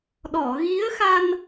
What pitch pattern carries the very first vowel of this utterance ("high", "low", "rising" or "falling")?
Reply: low